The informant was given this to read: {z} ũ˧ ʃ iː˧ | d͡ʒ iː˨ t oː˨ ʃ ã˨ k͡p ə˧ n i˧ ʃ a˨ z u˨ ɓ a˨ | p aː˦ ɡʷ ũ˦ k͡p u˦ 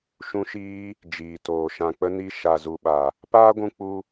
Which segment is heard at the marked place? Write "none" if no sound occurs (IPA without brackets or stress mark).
ʃ